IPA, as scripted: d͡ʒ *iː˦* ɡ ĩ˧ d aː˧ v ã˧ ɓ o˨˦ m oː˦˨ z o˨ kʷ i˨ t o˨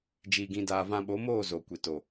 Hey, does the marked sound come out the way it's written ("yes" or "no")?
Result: no